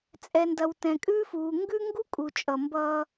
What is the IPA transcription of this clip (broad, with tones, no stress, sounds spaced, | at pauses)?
t͡sʼ ɛ˨ n d ɐ˨ w t ɛ̃˨ kʼ ʉː˦ f uː˨ ŋ ɡ ʉ˦ ŋ ɡ u˦ kʼ u˨ t͡ʃʼ ʌ˨ m b ʌː˦